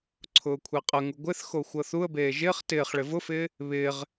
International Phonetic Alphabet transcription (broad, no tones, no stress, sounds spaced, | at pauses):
ǀʰ ʊː kʷʰ e qʼ ə ŋ u ɡʷ ɪ θ x o xʷ ɤ θ u ə̯ b eː ʒ ɪː χ t ɪː χ ɭ ɪ v ʊ f ɪː | β ɪː ʁ